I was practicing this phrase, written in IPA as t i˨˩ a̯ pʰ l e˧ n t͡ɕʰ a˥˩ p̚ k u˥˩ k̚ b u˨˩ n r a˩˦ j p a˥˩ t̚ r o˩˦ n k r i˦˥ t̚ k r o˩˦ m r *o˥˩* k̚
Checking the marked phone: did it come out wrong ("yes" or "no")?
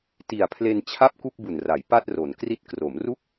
yes